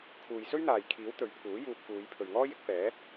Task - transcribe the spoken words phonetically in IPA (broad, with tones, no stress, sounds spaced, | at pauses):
kʰ uː˨ j s ɵ˥ ɥ n̪ aː˨ j kʰ iː˨˥ w t̪ ɵ˨˥ ɥ pʰ uː˨˥ j uː˧ p̚ f uː˨˧ j pʰ ɵ˨ ɥ ŋ ɔː˥ j ɪ˨˥ k̚ f ɛː˨˥